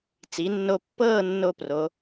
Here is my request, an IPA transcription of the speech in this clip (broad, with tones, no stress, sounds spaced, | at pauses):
t͡s i˩˧ nː o˧ pː ɤː˥˧ nː o˥˧ p r o˩˧